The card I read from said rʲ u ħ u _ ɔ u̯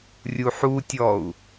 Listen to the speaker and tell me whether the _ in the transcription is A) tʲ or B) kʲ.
A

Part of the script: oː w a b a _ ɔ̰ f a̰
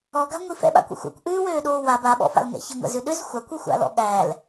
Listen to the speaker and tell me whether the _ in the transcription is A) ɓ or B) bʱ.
A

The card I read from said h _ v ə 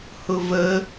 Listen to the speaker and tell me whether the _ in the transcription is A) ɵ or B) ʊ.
B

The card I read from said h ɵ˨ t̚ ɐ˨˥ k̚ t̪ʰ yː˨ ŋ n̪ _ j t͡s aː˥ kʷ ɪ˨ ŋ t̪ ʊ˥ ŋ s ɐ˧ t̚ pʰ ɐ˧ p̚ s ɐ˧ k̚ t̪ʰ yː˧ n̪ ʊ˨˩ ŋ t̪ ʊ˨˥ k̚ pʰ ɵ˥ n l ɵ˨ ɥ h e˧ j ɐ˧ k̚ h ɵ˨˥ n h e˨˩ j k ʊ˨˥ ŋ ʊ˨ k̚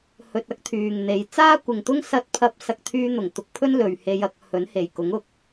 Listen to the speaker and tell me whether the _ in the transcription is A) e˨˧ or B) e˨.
A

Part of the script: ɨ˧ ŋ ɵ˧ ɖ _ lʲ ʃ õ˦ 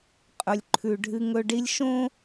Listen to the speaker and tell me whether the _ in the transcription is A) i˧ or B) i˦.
B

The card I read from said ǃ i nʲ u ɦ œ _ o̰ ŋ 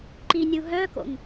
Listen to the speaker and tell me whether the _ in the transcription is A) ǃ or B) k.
B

